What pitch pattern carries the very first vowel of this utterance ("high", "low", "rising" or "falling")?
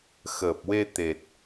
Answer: low